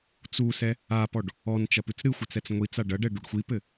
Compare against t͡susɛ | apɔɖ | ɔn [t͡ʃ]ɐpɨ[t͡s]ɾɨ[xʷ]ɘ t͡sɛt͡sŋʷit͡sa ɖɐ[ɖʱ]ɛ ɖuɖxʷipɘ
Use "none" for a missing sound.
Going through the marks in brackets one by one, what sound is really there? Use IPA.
t͡ʃ, t͡s, xʷ, ɖ

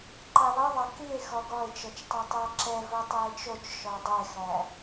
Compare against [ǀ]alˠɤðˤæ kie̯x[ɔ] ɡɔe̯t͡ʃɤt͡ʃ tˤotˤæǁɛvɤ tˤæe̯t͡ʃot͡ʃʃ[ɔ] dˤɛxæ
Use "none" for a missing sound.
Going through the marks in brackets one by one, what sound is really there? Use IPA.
ǃ, ɔ, ɔ

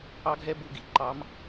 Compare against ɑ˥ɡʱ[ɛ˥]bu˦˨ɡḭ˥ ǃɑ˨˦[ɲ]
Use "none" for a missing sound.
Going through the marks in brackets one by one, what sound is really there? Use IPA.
ɛ˥, m

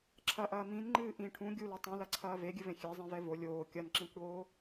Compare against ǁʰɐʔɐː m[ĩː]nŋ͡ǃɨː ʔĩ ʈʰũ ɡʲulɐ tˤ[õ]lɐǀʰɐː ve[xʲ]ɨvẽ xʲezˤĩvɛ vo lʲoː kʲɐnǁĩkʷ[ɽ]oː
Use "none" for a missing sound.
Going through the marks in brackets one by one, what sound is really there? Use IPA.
ĩ, ũ, ɡʲ, ɽ

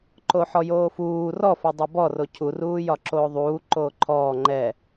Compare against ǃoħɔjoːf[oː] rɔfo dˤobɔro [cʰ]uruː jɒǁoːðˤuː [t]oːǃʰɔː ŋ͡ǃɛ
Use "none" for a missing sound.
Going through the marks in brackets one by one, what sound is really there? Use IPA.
uː, cʰ, ǃ

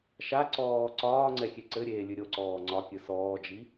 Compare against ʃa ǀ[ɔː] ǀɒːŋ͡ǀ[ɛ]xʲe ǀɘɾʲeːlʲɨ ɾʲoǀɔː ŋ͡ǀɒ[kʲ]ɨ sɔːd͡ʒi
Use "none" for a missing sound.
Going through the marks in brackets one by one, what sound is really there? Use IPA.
ɔː, ɛ, kʲ

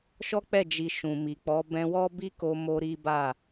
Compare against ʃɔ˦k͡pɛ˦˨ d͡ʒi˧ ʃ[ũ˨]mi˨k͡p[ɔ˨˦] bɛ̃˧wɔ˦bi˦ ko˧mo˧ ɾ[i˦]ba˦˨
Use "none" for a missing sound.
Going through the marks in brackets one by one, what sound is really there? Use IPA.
ũ˨, ɔ˨˦, i˦

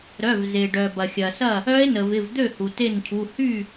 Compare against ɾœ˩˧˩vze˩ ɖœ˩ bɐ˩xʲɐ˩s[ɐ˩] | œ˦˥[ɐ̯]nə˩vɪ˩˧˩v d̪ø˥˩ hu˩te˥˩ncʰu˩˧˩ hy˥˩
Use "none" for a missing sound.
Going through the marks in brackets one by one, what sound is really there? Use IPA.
ɐ˥˩, e̯

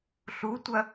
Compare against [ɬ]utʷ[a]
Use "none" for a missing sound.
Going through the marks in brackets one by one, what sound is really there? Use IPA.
ɬ, ɐ

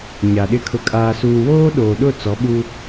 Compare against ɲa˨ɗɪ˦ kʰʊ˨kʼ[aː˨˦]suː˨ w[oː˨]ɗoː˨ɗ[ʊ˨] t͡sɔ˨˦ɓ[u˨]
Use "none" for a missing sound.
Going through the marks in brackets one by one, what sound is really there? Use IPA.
aː˨, oː˦, ʊ˦˨, u˦

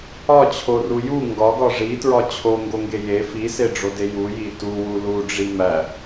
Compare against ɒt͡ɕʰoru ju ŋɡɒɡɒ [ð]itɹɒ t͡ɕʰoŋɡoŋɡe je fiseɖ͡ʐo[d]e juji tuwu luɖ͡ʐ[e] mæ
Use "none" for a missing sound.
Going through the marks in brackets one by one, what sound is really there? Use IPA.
ʐ, d, i

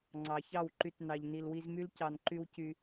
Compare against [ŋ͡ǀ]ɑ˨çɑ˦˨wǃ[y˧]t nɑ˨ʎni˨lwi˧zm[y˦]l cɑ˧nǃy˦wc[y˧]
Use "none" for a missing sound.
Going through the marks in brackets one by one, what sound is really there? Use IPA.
ŋ͡ǀ, y˧, y˦, y˧

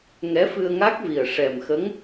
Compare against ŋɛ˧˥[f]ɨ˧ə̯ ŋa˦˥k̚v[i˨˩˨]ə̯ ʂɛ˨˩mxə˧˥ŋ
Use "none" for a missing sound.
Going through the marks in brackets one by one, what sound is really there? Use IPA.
f, i˨˩

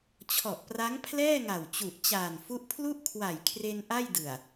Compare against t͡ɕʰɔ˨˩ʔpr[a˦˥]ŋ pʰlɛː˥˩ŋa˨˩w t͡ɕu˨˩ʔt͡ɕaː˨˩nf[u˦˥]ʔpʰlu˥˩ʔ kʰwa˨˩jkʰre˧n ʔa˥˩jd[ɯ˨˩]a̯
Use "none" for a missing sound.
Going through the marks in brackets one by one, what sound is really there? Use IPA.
a˦˥, u˦˥, ɯ˨˩

